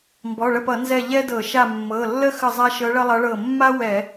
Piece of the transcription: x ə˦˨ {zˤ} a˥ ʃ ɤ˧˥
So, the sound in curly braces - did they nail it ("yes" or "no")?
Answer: yes